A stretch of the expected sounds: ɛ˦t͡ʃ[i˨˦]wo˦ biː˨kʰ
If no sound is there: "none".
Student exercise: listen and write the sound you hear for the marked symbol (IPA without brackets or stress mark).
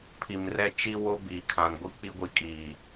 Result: i˦